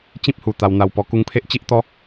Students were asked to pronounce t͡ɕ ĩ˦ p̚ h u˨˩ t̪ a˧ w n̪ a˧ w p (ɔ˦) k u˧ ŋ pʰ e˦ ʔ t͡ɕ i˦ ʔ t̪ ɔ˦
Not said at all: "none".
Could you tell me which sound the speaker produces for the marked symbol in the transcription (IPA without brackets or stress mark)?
ɔ˧